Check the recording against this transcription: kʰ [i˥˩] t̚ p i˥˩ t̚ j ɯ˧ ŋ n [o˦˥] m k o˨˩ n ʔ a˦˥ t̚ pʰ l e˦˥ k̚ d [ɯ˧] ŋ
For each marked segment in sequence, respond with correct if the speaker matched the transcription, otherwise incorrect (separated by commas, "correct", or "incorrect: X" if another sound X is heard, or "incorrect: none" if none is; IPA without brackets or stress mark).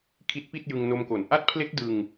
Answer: incorrect: i˦˥, incorrect: o˧, correct